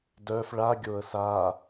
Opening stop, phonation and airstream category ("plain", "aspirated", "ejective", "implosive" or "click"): plain